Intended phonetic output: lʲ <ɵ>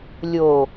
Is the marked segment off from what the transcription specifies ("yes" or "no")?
yes